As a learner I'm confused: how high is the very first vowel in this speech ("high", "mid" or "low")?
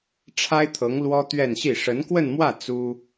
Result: low